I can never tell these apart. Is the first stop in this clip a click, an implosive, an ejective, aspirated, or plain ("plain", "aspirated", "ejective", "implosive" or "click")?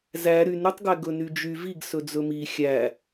plain